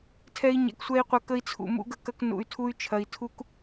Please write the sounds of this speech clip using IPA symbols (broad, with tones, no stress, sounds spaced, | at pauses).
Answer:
tʰ ɛ˦ i̯ ɲ ɛ̰˧ k sʷ ɛ˦ i̯ qʷ ɐ˦˨ k ə˦ i̯ t͡sʰ ṵ˧ m ṵ˦ ɡ ə˦ k ɐ˦ k n ṵ˧ y̯ tʰ u˦ y̯ t͡ʃʰ ɐ˧ i̯ tʰ u˦ k